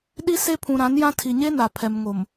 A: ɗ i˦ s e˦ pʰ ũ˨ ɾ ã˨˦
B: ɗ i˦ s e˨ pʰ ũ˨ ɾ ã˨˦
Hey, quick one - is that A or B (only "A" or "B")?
A